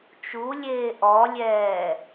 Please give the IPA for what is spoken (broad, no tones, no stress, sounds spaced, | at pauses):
t͡ʃ u lʲ eː ʔ ɔ lʲ ɛː